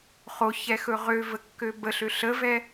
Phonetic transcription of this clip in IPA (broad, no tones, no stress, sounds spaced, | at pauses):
χ o ç ɛ x ɵ ʁ ø v ə kː ø b ə ɬ ø ɬ ə v ɛ